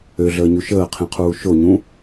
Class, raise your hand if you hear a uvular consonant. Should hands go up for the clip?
yes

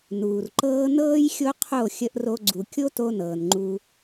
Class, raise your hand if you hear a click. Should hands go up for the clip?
yes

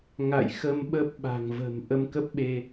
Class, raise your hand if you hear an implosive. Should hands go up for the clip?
yes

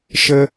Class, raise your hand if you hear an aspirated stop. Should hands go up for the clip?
no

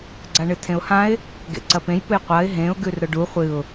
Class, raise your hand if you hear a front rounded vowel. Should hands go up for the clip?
no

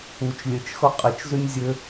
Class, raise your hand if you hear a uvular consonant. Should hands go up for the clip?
yes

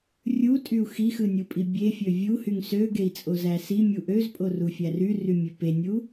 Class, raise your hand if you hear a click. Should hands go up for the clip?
no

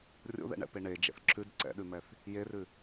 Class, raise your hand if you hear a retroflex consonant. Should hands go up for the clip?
yes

